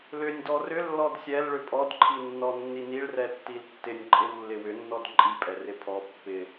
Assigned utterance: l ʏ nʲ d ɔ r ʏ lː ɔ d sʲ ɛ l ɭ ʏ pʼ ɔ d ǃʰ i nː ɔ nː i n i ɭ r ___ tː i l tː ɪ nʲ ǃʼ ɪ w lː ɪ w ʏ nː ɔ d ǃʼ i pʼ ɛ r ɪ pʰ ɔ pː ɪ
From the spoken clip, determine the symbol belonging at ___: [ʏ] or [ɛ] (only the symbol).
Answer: ɛ